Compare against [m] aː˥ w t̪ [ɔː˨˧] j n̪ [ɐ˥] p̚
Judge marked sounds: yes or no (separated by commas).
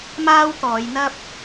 yes, yes, yes